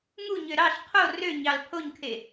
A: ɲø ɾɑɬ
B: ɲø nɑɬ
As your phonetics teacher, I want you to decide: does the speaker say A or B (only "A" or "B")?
A